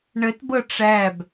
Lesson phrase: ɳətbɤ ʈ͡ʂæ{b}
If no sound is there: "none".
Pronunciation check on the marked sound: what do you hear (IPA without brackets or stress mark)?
b